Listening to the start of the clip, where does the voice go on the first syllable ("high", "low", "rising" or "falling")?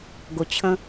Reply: low